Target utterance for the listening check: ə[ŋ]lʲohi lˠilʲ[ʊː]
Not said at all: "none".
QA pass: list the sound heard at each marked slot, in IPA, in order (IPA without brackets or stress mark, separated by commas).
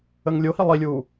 ŋ, uː